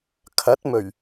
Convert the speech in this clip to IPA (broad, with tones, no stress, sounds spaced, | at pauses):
kʰ ɐ˨˥ t̚ m ɵ˨˩ ɥ